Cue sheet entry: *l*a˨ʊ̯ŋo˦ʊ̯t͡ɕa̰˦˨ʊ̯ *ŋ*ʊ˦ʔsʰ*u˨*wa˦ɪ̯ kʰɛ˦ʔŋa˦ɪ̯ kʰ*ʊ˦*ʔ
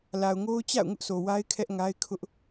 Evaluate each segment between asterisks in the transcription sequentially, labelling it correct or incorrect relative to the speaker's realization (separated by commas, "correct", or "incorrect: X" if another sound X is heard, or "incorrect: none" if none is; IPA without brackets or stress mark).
correct, correct, incorrect: o˨, correct